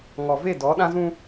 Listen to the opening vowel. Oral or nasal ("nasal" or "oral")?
oral